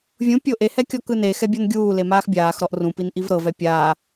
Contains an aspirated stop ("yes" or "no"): no